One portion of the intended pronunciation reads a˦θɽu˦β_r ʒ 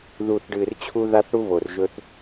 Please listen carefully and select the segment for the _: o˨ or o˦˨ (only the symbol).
o˨